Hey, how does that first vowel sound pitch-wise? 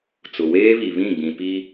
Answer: low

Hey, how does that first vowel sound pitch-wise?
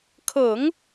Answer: low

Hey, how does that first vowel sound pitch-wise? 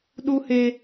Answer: high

